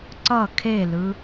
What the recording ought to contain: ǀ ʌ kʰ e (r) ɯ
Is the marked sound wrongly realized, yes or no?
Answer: yes